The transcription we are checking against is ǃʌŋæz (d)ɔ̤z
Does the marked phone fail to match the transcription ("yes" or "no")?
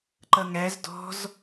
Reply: no